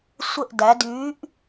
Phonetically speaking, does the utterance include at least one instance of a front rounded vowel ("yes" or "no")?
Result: yes